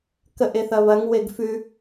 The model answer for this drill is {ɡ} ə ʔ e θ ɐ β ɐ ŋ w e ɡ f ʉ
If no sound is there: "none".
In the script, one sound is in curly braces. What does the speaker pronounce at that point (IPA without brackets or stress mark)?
k